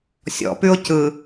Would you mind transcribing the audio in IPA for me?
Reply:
sʲ ɔ̰ p ʉ ʊ̯ c ɯ

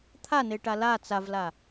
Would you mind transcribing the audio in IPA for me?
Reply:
t̪ʰ a n e ʈ a l a t͡s a v l a

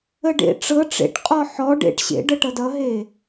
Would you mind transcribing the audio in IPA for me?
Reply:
ə ɖ ḛ ʈ͡ʂ ɤ ʈ͡ʂ ḛ ʈ qʼ ɔ ħ ɔ ɖ ḛ ʈ ɕ ḛ ɖ ɤ ʈ ʌ d ʌ ɦ e

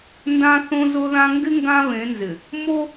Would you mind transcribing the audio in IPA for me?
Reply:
n d ã˦ θ õ˦ z ʊ˦ ð ã˦ ŋ ɡ ɪ˦ ŋ ɡ ã˦ β ẽ˨˦ n z ɪ˨ | m o˦

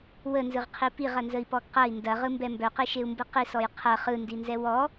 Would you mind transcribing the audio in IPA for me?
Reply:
w ə n z ɯ ʁ qʰ i p i ʁ ɐ n z ə i̯ p ɔ ɡ q ɐ i̯ n d ɐ ʁ ɯ m b ɛ m b œ q i ʃ e u̯ m b ɯ q i s ɔ j qʰ ɐ χ ɯ n d i n z ɛ w ɔ

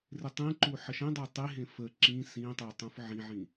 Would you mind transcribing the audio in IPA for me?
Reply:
r ɪ tˤ ĩ ǃ u ħ ə ʃ ẽ dˤ e tˤ i ɦ ẽ f ə ǁ ĩ s ĩ tˤ e tˤ ũ f ʕ ĩ ʕ ĩ

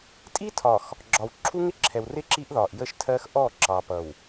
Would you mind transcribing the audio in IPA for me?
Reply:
tʼ i˦ tʰ ɒ˨ x | ɡ͡ǁ ɒ˨ w ǁʰ u˦ ŋ ɪ˦ ǁʰ ɛ˨ w r ɪ˦ ǁ i˦ ʔ ð ɒ˨ ʔ j ə˦ ʃ tʰ ɜ˦ x ʔ ɔ˦˨ ǁ ɑ˨ p ʌ˨ w

